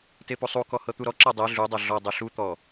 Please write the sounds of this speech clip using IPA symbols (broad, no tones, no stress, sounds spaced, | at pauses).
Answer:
t e p u sˤ u k ɔ h ɤ t̪ u ɾ ɔ ǁ ɤ dˤ ɛ ɮ u dˤ ɤ ɮ ɔ dˤ o ɬ u t̪ ɔ